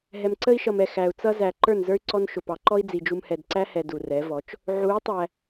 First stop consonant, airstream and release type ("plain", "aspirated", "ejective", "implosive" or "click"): click